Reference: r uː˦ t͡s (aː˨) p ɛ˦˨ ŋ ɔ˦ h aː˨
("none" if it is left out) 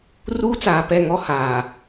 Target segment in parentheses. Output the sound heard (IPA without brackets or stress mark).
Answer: aː˨